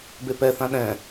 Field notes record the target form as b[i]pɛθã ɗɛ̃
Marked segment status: incorrect: e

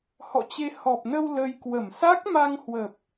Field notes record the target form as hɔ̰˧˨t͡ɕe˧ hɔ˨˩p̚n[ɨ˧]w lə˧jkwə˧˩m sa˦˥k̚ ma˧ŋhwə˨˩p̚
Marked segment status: incorrect: ə˧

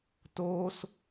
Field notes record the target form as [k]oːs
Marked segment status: incorrect: t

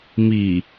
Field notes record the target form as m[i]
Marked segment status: correct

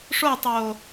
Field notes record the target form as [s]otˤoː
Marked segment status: incorrect: ʂ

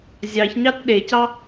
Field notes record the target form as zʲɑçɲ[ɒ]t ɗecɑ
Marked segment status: incorrect: ɑ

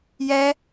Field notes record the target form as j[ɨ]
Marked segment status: incorrect: ɛ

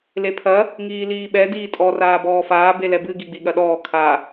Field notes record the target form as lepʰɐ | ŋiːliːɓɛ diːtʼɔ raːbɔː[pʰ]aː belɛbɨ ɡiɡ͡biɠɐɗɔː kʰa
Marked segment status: incorrect: f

